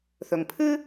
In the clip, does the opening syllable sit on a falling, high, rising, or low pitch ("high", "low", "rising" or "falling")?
low